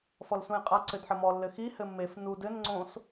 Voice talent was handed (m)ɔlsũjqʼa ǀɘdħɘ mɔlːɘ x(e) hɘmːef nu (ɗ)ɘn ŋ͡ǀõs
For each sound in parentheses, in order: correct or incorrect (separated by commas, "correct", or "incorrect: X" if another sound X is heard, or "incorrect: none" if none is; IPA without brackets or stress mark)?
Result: incorrect: f, incorrect: i, incorrect: d